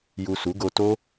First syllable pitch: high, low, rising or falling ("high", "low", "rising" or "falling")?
low